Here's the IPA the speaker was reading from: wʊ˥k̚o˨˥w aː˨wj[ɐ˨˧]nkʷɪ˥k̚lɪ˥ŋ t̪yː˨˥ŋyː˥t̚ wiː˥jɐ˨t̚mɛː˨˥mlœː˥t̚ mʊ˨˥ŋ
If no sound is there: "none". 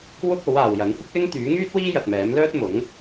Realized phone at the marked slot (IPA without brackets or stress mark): ɐ˨˥